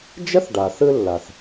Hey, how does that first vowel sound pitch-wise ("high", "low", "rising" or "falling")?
high